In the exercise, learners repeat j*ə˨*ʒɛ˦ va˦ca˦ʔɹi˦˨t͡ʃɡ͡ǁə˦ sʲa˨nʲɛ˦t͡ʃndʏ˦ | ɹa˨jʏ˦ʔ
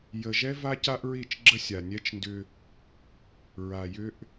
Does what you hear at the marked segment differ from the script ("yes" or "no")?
no